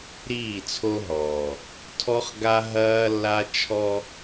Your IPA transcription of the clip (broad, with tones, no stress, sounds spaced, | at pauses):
ɾ iː˦˨ t͡sʰ o˦ ɦ ɔː˨ | tʰ ɔ˦ χ ɡ a˦ ɦ ɐː˦ lː a˦ t͡ʃʰ ɔ˦